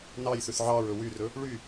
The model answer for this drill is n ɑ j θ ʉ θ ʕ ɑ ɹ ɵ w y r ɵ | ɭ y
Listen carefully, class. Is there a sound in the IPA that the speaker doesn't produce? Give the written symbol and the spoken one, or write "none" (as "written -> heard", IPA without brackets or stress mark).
none